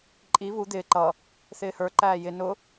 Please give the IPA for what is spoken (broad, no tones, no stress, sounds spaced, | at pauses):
ǃʼ i β u d̪ ɪː ǃ ʌ | θ ɪː h ə˞ ǃ æː j ɪ n ʊ